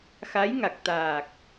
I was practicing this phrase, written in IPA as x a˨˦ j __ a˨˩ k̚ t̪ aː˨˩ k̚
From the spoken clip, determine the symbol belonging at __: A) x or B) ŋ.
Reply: B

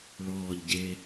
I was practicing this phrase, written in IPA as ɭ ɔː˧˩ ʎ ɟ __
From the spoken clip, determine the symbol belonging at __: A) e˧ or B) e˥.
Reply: A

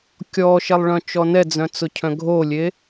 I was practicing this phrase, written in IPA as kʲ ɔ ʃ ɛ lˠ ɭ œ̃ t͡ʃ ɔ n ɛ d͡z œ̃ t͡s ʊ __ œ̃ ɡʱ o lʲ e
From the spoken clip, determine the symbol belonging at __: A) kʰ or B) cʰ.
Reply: B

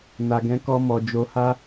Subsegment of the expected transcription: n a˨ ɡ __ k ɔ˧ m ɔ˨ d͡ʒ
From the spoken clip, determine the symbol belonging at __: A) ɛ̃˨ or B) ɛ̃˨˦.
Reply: B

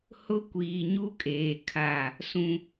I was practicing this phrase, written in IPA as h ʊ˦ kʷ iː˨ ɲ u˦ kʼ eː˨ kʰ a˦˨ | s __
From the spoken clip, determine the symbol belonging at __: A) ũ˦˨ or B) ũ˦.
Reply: B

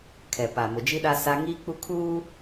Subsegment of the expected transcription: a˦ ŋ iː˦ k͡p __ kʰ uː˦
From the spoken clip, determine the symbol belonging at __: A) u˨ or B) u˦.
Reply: B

